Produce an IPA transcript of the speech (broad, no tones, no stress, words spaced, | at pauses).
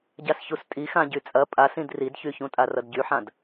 ɟasçustʼixã ɟyt͡sʼɐ pʼasĩd ridçyçũtʼa rʌdɟyħãd